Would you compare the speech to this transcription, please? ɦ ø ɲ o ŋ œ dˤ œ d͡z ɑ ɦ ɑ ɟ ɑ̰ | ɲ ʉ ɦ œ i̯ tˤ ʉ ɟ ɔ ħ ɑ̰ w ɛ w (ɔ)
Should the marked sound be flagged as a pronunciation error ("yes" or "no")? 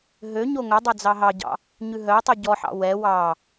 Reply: yes